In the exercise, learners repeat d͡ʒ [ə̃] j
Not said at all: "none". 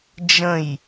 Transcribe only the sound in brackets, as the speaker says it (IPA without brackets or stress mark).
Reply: ə̃